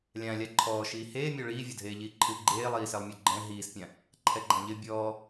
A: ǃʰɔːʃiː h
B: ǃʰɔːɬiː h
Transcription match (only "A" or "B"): A